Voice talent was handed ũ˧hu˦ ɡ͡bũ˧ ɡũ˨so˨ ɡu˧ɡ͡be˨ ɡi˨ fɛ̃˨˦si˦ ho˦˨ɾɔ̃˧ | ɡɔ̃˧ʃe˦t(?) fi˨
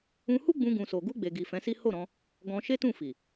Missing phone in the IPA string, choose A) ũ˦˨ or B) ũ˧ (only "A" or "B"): A